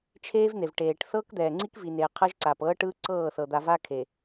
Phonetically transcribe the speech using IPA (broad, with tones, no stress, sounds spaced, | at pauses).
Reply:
t͡ʃʰ eː˦ v n̪ e˨ v ʈ eː˨ ʈ θ ɤː˦ k d̪ ɛː˨ ŋ͡ǀ i˦ k v i˨ n eː˨ qʰ ɤ˦ ʒ ǀ aː˨ p ɤː˦ ʈ ɯː˦ ǀ ɤː˦˨ θ ɤ˨ d̪ a˨ v a˦ kʰ e˨